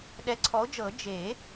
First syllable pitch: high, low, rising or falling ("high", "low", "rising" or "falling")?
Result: rising